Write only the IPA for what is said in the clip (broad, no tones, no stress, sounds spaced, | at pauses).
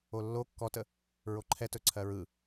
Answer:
o lː o kː ɔ t ə | ɹ o ǃʰ ɛ t ɵ ǀʰ ɜ ɹ ɯ